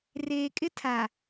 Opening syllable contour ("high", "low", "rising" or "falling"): low